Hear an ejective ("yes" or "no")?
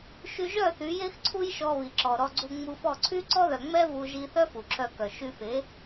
no